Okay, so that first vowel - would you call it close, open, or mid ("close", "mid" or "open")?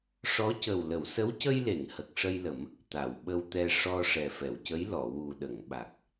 mid